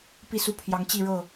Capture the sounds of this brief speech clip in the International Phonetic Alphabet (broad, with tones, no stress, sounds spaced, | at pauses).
p i˥˨ s u˥˨ pʰ j ɑ˨˦ ŋ t͡ɕ i˥˨ ɻ ɤ˥˨